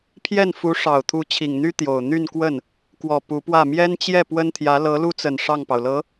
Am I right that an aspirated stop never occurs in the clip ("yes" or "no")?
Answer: no